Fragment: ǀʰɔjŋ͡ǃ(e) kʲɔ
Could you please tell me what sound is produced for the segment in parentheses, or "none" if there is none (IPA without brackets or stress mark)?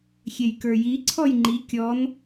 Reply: i